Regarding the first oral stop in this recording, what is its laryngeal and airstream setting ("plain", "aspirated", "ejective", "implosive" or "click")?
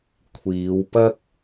aspirated